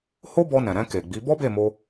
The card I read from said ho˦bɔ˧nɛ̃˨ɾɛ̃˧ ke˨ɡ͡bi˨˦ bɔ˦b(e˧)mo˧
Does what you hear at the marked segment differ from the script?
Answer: yes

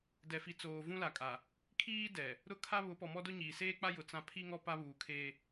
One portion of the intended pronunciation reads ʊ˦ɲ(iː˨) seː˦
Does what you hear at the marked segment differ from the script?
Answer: no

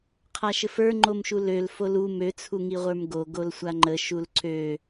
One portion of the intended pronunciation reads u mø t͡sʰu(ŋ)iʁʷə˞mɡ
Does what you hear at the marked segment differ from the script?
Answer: no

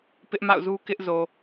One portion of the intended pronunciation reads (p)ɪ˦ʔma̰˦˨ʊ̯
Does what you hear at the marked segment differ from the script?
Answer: no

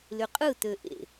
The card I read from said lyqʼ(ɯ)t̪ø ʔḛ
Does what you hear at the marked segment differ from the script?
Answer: no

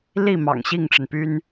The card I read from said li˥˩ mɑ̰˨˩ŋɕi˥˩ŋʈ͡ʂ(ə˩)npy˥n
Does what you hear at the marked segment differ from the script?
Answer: no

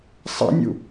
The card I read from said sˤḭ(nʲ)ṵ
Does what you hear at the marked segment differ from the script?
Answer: no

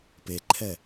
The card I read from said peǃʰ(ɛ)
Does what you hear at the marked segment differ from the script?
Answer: no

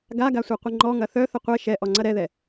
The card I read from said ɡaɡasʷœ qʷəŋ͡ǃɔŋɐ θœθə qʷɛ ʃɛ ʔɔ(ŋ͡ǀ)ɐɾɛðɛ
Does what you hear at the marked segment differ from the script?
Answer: no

